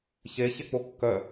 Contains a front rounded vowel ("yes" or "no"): yes